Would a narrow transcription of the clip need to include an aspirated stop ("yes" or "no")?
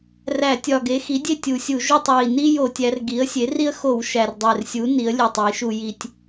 no